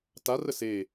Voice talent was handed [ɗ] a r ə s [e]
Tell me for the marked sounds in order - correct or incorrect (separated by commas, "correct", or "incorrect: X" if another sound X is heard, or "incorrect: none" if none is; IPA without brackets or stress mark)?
incorrect: t, correct